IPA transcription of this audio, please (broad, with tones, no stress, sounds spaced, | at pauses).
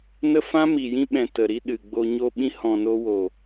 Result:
n ə˦ f ã˦ m i˨ j ĩ˧ ɓ ɛ̃˨ t ə˨ ɾ i˧ ɗ ɨ˨ ɡ͡b o˧ ɲ o˧ ɓ ĩ˧ h ɔ̃˨ n o˧ w o˨